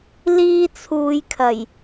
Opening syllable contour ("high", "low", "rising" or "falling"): high